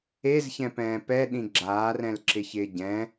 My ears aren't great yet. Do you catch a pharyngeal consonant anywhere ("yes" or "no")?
no